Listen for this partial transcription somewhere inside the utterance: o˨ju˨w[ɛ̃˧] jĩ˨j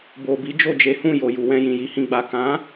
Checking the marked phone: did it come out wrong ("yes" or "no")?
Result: no